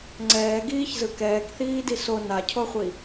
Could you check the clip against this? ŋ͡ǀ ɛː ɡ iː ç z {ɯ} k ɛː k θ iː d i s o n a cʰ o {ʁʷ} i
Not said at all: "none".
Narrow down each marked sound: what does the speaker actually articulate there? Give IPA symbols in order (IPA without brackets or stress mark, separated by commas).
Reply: ɯ, χʷ